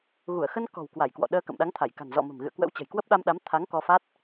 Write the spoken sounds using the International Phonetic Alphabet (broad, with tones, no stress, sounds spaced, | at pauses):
ɣ u˧˩ ə̯ x ə˧ n k ɔ̤˨˩ w k w a˧˩ j k w ɔ̰˧˨ ɗ əː˧ k ə̰˧˨ m ɗ a˨˦ ŋ t̪ʰ a˧˩ j k a̤˨˩ n z ɔ̰˧˨ m ə̤˨˩ m ɣ ɨ̰˧˨ ə̯ k w ə̰˧˥ w t͡ɕ ə̤˨˩ j k w ə˦˥ p̚ ɗ a˧ m ɗ a˨˦ m t̪ʰ a˨˦ ŋ k ɔ˧ f a˦˥ t̚